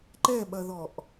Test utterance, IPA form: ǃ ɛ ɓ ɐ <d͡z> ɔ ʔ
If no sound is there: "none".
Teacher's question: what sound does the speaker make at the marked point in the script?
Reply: ð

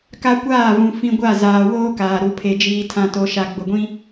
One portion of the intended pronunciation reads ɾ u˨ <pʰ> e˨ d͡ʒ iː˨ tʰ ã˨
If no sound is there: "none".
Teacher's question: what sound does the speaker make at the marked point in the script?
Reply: pʰ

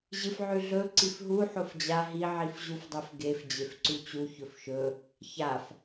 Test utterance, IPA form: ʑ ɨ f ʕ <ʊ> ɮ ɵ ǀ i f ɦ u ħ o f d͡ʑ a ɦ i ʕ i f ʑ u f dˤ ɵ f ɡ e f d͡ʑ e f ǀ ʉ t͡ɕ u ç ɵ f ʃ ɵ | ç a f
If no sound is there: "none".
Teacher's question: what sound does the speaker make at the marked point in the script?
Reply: ʉ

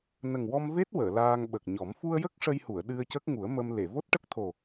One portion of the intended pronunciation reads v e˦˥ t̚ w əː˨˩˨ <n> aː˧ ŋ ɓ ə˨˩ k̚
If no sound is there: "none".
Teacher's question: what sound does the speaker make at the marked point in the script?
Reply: l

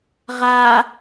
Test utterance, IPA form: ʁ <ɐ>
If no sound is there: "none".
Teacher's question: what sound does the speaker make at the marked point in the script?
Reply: a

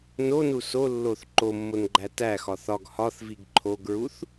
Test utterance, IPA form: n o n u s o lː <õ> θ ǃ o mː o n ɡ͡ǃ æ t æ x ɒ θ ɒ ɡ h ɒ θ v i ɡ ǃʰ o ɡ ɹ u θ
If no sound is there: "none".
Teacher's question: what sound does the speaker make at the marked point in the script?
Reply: o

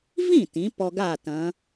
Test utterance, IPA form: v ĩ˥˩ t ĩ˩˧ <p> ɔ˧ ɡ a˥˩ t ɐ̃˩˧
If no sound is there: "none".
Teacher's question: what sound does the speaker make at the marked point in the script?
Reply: p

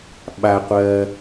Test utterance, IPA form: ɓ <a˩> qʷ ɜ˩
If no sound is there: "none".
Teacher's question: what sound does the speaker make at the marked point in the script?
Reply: a˩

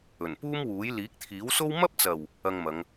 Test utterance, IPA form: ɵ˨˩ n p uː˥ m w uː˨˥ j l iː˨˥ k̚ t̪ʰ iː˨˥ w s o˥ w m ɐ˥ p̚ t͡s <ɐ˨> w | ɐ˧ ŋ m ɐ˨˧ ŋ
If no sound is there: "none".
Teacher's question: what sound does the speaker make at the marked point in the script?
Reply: ɐ˨˩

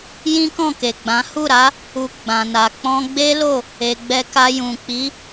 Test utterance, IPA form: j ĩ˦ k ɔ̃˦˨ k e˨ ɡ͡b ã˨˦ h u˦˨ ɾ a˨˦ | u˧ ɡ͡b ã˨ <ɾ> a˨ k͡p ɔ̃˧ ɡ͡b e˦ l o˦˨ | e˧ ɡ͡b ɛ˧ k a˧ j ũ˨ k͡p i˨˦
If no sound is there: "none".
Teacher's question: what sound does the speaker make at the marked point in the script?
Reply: n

